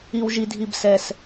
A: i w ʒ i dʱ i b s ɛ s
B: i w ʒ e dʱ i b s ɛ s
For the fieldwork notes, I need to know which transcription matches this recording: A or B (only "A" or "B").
A